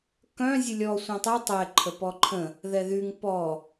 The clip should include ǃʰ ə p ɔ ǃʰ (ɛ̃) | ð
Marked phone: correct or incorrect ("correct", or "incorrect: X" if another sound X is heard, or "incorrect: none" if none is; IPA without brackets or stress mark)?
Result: incorrect: ə̃